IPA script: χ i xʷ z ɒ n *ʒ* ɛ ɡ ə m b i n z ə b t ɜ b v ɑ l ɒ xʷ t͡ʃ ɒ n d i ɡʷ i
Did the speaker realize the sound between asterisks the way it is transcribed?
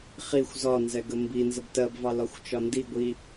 no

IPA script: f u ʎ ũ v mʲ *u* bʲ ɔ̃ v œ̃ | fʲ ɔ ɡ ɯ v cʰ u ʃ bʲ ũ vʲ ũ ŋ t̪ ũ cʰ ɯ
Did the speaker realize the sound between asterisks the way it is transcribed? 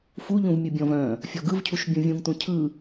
no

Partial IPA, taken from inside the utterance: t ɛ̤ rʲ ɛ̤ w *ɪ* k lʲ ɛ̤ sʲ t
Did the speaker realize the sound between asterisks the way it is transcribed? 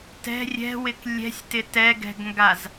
yes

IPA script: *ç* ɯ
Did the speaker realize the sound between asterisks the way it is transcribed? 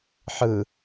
no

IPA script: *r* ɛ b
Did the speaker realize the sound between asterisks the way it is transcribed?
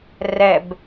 yes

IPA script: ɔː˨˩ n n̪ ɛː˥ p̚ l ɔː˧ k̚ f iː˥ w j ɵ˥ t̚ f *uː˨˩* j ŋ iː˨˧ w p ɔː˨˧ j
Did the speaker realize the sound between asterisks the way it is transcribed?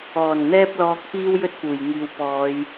yes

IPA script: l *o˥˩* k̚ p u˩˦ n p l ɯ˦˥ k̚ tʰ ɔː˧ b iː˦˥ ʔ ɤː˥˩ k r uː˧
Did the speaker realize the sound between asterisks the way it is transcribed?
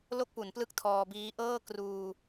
yes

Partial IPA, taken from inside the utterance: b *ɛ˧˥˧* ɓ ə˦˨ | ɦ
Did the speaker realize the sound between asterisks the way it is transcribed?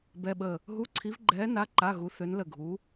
yes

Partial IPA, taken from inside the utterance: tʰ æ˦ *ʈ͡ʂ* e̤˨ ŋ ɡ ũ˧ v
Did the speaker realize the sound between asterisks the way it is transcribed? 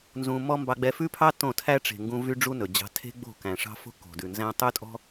yes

